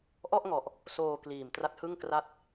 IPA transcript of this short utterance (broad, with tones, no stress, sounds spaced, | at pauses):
ʔ ɔ˥˩ ʔ ŋ ɔ˨˩ ʔ | s oː˧ k l iː˨˩ m t r a˦˥ t̚ h ɯ˥˩ ŋ k r a˥˩ t̚